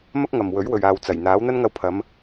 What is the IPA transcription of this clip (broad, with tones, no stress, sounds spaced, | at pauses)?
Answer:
m ɐ˥ k̚ ŋ ɐ˨ m w ɵ˨˥ ɥ w ɵ˨ ɥ aː˨ w t͡s ɐ˨˩ j n̪ aː˨˥ w n̪ ɐ˥ n ŋ ɐ˧ w pʰ ɐ˨˧ m